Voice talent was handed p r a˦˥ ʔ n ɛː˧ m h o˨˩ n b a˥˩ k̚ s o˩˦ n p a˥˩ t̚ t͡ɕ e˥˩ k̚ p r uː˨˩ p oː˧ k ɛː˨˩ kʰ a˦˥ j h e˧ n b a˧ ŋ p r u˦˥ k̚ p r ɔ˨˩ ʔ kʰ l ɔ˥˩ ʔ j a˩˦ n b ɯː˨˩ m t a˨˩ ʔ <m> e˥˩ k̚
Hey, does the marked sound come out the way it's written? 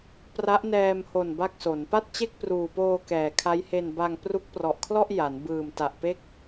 no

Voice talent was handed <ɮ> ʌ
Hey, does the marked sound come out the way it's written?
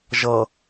no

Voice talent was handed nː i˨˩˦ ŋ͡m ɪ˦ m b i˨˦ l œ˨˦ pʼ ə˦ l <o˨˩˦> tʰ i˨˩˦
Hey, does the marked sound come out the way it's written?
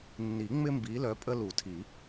no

